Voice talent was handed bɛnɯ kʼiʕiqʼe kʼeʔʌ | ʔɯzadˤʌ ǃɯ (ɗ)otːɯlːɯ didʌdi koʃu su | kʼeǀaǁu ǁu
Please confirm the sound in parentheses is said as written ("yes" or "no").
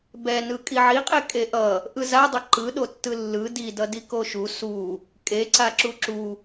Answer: yes